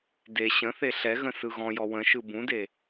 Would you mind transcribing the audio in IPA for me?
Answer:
d e ɕ ə̃ θ e ɬ ɛ ɣ ə̃ s ɯ ɣ ɔ̃ j ɔ w ə̃ ʃ ɯ b ũ d e

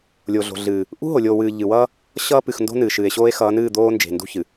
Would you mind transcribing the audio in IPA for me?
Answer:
lʲ o˨ ɮ o̤˨ ɮ ɨː˨ | ʔ ṳ˦ ɦ o˨ lʲ oː˨ w ɨː˨ ʎ ɨ˨ w ʌː˦ | ɕ ʌː˦ p ɨ˨ x n d o̤˦ n ɨː˨ ʃ ɨː˨ e̯ ɕ oː˦ e̯ x ʌː˨˦ n ɨː˦˨ d̪ oː˦ n d͡ʒ e̤˨ n d ṳ˦ ç ɨ˨

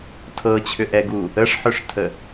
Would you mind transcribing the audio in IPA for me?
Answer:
tʰ ɤ t͡ɕʰ ʏ ʔ ɛ ɡ u | ə ʂ ħ ʏ ʂ tʰ ə

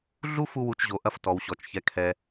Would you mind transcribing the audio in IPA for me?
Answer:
ɮ u˦ f u˦ w u˧ t͡ʃ ʑ o˨ ʔ ɐ˦ f t ɔ˨ w ɕ ɔ˨ t͡ʃ ç ɛ˧ kʰ ɛ˧

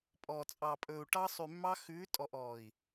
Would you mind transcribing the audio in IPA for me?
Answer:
pʼ ɔː˨ t͡sʼ ɑ˨ pʼ ɵː˨ u̯ ʈ ɑ˦ sˤ y˨ mː ɑ˦ x ʉː˨˦ tʼ ɔ˨ ʔ ɔː˨ i̯

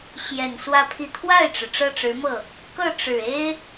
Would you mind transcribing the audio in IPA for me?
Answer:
ɕ j ɛ˨˩ n s w ä˥˧ pʰ i˥˧ t̪ʰ w a˥˩ ɪ̯ ʈ͡ʂ ɻ̩˩ ʈ͡ʂ ɤ˥˩ ʈ͡ʂ ɻ̩˧˥ m ɤ˥˩ | k ɤ˥˩ ʈ͡ʂ ɻ̩˨˩ e˥ ɪ̯

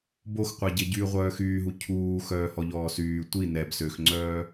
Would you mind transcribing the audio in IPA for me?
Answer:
b o x qʷ a ɟ e ɟ yː ʁʷ œː x yː ɦ u cʰ uː x œː h ɔ ʎ ɔː s yː tʷ i n ɛ b s ø x ŋ͡ǀ œː

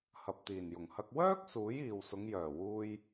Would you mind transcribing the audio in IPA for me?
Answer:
h ɐ˨ p̚ t̪ iː˨˩ n j ʊ˨˩ ŋ h ɐ˧ k̚ w œː˥ k̚ s uː˨˥ j iː˨ w s ʊ˨˧ ŋ j œː˨˩ w uː˧ j

